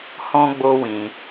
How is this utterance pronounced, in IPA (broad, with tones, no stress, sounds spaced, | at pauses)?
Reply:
h ɔ̃˦ ɡ͡b o˦ w ĩ˧